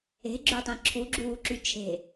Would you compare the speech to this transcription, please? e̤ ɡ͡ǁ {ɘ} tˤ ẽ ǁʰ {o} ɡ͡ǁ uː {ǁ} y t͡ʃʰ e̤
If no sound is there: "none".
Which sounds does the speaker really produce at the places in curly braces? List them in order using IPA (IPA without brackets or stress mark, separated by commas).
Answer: ø, u, ǁ